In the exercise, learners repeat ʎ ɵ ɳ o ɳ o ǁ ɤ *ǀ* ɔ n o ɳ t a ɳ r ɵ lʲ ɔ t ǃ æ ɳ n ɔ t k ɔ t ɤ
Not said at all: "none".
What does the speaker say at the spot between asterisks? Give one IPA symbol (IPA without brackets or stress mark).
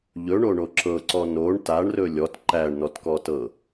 ǀ